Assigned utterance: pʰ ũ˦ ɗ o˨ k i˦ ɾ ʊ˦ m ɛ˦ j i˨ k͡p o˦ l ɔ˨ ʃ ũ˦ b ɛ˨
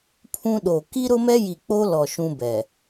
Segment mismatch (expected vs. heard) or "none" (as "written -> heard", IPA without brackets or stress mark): none